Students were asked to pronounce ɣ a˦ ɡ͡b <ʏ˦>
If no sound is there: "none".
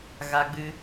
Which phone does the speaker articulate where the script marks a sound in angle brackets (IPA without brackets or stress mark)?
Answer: ɨ˦